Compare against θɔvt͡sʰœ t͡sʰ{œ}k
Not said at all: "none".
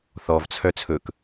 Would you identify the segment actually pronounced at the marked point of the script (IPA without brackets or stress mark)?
ɵ